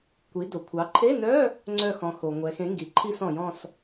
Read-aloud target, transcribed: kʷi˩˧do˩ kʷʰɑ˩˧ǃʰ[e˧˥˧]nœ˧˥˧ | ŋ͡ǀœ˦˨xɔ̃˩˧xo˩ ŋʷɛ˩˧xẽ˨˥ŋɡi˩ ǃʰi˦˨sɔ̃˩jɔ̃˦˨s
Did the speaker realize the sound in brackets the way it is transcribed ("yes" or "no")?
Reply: yes